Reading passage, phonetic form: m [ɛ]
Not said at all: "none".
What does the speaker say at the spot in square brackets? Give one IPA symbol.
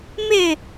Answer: ɪ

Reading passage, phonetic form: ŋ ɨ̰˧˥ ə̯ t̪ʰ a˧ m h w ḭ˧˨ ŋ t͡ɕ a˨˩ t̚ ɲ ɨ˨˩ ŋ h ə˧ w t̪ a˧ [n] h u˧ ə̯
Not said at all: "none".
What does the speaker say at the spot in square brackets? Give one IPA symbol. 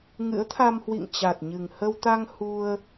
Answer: ŋ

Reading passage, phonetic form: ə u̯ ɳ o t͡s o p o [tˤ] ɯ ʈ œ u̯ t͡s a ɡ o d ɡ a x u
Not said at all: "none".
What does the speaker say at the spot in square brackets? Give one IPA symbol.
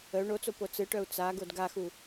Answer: t͡s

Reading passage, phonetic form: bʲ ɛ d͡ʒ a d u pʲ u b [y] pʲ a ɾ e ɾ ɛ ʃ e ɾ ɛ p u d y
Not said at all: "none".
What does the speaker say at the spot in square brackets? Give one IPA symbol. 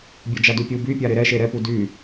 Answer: y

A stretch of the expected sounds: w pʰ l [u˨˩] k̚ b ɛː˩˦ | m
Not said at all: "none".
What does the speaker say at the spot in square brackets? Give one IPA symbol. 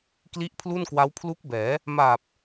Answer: u˦˥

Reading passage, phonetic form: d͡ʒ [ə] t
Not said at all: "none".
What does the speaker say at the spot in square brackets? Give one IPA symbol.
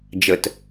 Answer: ə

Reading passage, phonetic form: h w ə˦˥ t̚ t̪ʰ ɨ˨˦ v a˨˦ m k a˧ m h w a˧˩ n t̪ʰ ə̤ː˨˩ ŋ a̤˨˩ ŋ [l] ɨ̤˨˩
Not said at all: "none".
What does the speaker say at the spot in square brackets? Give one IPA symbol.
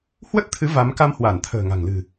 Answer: l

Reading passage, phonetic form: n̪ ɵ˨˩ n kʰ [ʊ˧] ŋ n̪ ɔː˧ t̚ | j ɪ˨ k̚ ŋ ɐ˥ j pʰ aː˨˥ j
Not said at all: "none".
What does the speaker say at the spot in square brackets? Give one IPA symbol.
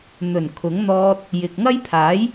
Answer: ʊ˨˥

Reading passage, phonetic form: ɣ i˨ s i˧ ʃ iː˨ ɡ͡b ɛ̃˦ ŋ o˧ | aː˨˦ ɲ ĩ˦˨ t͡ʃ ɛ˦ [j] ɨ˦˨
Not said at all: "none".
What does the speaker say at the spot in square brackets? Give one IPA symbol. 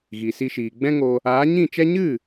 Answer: ɲ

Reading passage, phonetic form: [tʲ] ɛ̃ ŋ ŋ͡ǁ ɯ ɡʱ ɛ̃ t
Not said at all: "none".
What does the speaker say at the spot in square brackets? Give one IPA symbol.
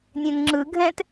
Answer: nʲ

